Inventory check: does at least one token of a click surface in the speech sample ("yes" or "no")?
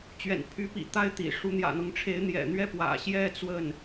no